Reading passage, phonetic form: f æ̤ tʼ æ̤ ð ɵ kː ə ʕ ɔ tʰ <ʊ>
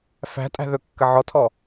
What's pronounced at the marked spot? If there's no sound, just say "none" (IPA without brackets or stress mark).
ɔ